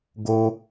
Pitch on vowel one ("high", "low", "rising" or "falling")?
high